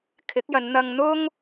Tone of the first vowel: rising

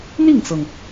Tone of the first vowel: falling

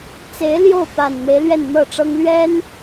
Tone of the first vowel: rising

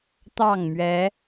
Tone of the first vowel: falling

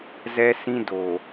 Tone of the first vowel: high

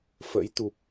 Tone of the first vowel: rising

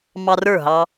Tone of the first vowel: high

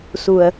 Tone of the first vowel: low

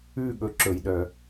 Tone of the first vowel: falling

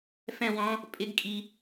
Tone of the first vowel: falling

